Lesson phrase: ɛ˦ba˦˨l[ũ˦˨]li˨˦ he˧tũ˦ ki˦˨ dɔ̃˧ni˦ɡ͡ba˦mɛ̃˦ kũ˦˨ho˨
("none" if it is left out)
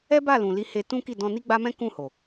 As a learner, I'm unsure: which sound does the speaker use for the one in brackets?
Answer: ũ˨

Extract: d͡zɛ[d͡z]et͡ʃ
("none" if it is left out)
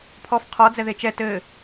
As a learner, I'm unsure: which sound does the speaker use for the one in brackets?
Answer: ð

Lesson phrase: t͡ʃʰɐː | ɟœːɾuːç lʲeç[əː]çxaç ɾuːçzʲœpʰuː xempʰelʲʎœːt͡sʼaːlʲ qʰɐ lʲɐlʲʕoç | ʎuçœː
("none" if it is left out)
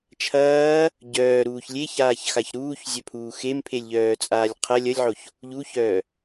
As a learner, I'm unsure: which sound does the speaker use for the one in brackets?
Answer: aː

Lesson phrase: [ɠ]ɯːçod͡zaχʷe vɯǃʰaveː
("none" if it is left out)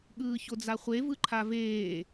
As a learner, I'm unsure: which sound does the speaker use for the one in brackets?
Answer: ɠ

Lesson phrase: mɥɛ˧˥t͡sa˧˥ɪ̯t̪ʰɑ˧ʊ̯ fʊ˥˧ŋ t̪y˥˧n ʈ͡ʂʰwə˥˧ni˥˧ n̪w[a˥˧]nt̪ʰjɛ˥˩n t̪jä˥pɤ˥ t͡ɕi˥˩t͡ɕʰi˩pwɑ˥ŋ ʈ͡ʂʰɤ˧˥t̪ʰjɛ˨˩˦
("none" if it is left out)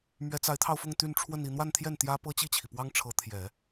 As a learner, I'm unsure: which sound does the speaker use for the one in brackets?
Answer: a˥˧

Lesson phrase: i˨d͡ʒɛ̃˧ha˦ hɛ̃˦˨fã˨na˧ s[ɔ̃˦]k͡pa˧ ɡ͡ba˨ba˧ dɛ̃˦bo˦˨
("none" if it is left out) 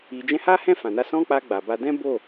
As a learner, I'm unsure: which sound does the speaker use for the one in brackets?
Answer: ɔ̃˦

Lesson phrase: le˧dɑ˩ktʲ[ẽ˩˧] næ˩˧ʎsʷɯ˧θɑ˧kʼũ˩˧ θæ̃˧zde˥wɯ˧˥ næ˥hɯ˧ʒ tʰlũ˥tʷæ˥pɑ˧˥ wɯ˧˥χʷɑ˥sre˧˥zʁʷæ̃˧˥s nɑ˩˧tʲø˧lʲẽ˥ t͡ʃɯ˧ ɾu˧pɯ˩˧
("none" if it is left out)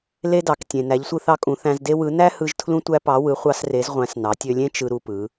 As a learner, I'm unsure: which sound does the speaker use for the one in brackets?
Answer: ẽ˩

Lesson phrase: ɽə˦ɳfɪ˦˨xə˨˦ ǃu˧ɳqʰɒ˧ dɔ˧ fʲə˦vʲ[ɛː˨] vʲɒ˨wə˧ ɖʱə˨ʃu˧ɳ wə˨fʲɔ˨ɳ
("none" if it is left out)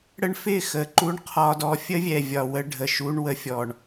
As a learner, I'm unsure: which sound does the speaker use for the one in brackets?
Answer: ɛ˨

